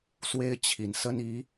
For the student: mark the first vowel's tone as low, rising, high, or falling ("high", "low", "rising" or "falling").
high